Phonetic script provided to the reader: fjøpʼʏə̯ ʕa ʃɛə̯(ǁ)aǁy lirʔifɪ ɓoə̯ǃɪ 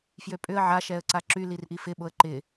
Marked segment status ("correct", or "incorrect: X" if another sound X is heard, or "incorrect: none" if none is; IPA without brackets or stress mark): incorrect: ǀ